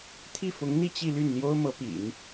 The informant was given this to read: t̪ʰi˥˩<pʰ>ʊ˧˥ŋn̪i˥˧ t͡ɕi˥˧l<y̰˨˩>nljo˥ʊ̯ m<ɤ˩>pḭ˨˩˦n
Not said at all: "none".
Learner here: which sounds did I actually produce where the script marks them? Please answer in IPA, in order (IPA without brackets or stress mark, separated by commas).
f, y˥˩, ɤ˧˥